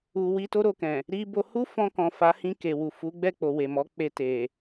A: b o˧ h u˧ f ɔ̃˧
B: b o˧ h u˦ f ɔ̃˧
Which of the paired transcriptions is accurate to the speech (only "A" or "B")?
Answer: B